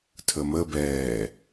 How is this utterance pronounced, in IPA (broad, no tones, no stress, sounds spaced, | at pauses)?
tʰ ə m ə b ɛː